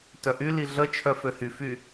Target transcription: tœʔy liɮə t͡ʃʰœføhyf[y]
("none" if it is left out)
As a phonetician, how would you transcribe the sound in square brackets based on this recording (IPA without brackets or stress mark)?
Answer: y